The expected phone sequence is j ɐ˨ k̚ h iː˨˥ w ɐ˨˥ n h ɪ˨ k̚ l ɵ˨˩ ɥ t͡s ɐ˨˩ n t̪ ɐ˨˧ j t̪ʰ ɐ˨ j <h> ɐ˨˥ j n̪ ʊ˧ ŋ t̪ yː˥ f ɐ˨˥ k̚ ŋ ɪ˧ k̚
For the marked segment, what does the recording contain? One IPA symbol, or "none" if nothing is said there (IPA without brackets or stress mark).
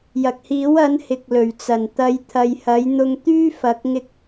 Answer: h